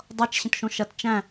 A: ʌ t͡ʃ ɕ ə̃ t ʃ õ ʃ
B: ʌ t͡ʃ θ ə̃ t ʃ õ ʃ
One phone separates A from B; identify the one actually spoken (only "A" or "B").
A